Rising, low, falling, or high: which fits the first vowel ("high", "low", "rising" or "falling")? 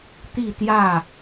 falling